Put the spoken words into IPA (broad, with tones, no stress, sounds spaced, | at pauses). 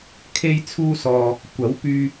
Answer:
kʰ e˥ j t͡sʰ uː˥ s ɔː˧ | kʷ ɐ˨˥ w p yː˧